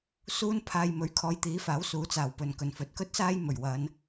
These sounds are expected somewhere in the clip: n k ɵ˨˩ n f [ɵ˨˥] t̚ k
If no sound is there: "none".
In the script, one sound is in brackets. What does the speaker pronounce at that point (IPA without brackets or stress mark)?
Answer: ɵ˨˥